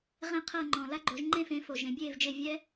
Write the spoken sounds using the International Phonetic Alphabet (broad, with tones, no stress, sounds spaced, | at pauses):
ʁ ẽ˥˧ qʰ ɤ˥˧ ŋ͡ǃ ɔ̃˨ l a˥ ɡ͡ǃ o˨˥ ʒ ŋ͡ǃ ẽ˥˧ f ẽ˨˥ f o˨ ʒ ẽ˨˥ bʲ eː˥˧ v d͡ʒ e˥˧ vʲ ɛ˥